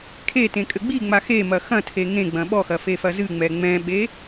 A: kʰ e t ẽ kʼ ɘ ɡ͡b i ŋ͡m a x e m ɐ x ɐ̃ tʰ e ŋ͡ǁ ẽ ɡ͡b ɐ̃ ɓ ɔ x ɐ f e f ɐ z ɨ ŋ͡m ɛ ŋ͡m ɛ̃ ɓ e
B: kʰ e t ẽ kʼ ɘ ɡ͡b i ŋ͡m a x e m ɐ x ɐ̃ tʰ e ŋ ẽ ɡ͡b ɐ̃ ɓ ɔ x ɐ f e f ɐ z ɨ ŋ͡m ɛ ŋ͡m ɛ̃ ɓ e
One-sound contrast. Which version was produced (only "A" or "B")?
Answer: B